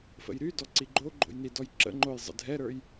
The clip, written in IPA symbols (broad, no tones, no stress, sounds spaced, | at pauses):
f ə̰ j ɾ y d ɔ ǀ i ɡ͡ǃ o ɡ͡ǃ o̰ j n i d ɔ j ǁ ə̰ ŋ͡ǃ o j zˤ ə̰ dʱ ɛ ɾ ə˞ j